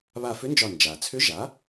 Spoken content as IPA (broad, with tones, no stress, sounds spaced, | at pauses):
β a˧˩ f ʏ˧˥ n d͡ʒ ɒ˧˩ n d͡ʒ a˩ t͡sʰ ʏ˧˥ ʒ a˩˥